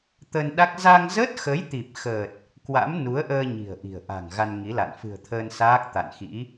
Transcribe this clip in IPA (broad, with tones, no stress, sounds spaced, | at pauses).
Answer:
t̪ ə˧ n ɗ a˦˥ k̚ z a˧ ŋ z əː˦˥ t̚ x ə˨˦ j t̪ i˨˩ p̚ x əː˨˩ t̚ | k w a̰˧˥ m n u˨˦ ə̯ ʔ əː˧ ɲ i̤˨˩ ə̯ ʔ i̤˨˩ ə̯ ʔ a̤˨˩ ŋ ɣ a˧ n ŋ i˨˦ l a̰˧˨ n f ɨ̤˨˩ ə̯ t̪ʰ əː˧ n s aː˦˥ k̚ t̪ a̰˧˨ n x ḭ˧˥